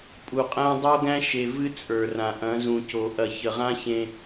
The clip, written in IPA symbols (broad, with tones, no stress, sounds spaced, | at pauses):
pʼ u˨ qʼ æ̃˦ dˤ o˦ ɡ æ̃˦ ʃ e˨ v ɨ˦ t͡sʼ ə˞˨ r ã˨ ʔ ɐ̃˨˦ z ũ˨ c o˨ ʔ ɐ˨ ç ə˨ ʁ ã˦ ç ẽ˦